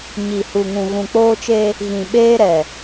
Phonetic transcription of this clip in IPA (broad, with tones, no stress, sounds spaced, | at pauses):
ɲ i˨ h u˨ ŋ ũ˨ ɣ ũ˨ k͡p oː˦ t͡ʃ e˦ | ɣ ĩ˨ ɓ eː˦ ɾ ɛ˨